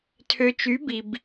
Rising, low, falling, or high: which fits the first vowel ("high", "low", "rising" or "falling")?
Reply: low